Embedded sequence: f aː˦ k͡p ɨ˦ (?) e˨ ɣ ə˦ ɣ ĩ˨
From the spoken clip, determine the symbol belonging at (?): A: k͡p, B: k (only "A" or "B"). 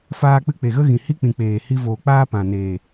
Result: A